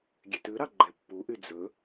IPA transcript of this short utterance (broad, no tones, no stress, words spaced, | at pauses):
ɡʲetʉɾɑ ɡ͡ǃɛpːuʔy d͡zɵ